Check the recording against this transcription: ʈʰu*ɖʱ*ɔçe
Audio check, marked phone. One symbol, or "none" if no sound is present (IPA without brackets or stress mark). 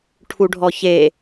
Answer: ɖʱ